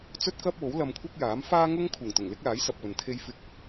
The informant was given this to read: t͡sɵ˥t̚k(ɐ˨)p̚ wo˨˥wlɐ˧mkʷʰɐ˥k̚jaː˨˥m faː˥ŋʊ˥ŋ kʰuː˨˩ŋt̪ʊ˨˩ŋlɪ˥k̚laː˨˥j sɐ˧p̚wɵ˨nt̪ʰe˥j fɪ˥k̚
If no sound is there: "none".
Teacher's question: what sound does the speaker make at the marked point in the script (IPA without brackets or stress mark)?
ɐ˥